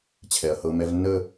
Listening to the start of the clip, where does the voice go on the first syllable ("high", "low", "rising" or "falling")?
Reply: low